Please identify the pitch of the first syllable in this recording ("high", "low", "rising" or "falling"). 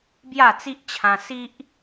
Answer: falling